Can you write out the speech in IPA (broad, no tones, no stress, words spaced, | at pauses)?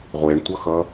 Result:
ʁʷeɳtʷʌxʌ